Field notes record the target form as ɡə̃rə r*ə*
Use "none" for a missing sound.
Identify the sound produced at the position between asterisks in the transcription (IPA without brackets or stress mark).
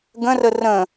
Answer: ə̃